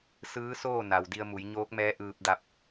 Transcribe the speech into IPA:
s ɯː˧˥ s oː˥˨ n a˩ w d i˧ ə̯ m u˩˧ j ɲ oː˧˥ k̚ m ɛː˧˥ ʔ ɯː˧ p̚ d a˧ p̚

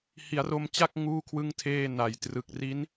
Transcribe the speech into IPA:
h i˩˦ a̯ r o˧ m t͡ɕ a˥˩ k̚ ŋ uː˥˩ kʰ w ɯ˥˩ ŋ tʰ eː˥˩ n a˨˩ j t r ɯ˨˩ k̚ r i˦˥ n

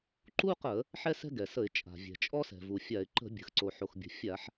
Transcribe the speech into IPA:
ǃ u˥ q ə˧˩˧ | ħ ɛ˥ s ɛ̤˥ ɡ ɛ˩ s ə˧˩˧ ɪ̯ t͡ʃʼ a̤˩ vʲ ɛ̤˩ t͡ʃʼ ɔ˥ s ɛ̤˩ v u˩ fʲ a˧˩˧ ɪ̯ ǃ ə̤˧˩˧ bʲ ə̤˩ x ǀ o˩ ħ o˩ x bʲ ə̤˩ fʲ a˧˩˧ ħ

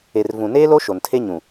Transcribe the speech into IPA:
e˨ r v ũ˨ n eː˦ l o˦ ʃ o˨ n tʰ e˦ ɲ ũ˨

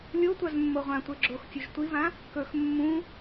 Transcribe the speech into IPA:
lʲ o tʷ a z mː o ʁʷ ã tʷ e ɡ͡ǁ o x tʲ o ʒ tʷ i v ã | k ɵ x mː ũ

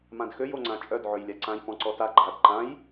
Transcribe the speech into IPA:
m ã d x ø j o ŋ͡ǀ ã t͡ʃʼ œ d ʕ ø j lʲ a ǀ ã j p ɔ̃ ǀ ɔ t a ɡ͡ǃ a d ǃ ã j

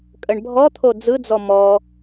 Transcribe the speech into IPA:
kʼ ə ɳ bʱ ɔ t̪ʰ o d͡z ɯ d͡z ɔ m ɔ

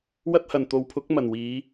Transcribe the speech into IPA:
w ɐ˥ t̚ h ɐ˨˩ n t̪ o˨ w pʰ ʊ˨˥ k̚ m ɐ˨˩ n w iː˨˥

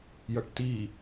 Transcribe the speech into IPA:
j ʌ ʈ t i

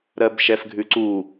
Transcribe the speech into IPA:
ɾ ɜ b ʃ ɛ f ɡʱ ʉ ǀ u

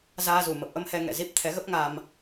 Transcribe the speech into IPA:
z aː˧ z u˧˩ m ə˨˩ p̚ ʔ ə˧ m h ɛ˧ ŋ ɛ̰˧˨ z i˦˥ p̚ t̪ʰ ɛ˨˦ ɣ ə˦˥ p̚ ŋ a˧ m

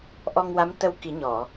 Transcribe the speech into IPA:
ʔ ɔ˧ ŋ w a˧˥ m t̪ ə˧ w k i˨˩˦ ɲ ɔ˨˩˨

